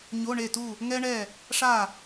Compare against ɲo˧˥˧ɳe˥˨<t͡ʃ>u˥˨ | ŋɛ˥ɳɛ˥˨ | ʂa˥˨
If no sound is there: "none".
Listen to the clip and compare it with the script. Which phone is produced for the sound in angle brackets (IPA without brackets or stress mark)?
t